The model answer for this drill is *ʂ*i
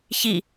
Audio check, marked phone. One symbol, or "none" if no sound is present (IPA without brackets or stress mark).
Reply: ç